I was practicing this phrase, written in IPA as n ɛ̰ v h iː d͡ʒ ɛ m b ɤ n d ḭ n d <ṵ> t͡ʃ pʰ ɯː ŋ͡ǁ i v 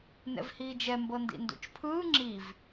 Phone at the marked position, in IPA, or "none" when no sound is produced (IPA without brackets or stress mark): ṵ